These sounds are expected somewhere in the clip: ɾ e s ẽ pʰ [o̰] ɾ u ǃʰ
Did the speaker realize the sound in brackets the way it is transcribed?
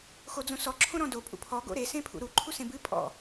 no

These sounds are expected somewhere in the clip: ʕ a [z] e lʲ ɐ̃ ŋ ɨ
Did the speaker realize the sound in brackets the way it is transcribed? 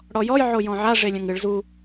no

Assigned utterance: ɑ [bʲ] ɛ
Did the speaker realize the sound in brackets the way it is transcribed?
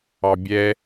yes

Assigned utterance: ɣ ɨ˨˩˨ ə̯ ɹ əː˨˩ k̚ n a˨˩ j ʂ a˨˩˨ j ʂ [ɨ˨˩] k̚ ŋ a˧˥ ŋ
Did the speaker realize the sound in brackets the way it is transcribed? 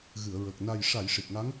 no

